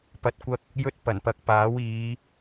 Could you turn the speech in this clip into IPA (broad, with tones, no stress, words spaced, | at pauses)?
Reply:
pɐ˨t̚kʷɐ˧k̚ | jɵ˧t̚ pɐ˨˩npɐ˨˥k̚paː˨˥wiː˨˧